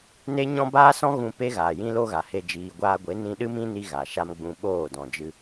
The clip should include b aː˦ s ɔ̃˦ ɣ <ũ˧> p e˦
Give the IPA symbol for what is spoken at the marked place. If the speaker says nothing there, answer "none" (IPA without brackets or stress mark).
ũ˧